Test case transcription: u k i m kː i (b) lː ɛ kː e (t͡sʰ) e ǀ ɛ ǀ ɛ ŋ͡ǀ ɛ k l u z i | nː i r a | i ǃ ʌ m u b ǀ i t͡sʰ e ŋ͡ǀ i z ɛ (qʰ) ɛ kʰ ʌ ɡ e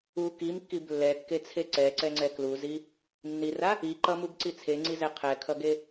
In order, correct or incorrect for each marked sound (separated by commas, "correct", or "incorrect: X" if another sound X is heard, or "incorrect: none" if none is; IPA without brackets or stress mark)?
correct, correct, correct